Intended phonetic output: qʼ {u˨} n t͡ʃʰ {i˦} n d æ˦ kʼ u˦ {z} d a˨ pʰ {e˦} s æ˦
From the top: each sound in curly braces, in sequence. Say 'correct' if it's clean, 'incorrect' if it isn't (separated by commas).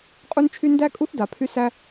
incorrect, incorrect, incorrect, incorrect